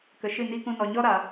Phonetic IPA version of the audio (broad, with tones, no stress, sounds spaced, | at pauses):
k ə˨ ʃ ɨ˦˨ n i˦ k ũ˧ n ɔ˨ ɲ ɔ˦ ɾ a˨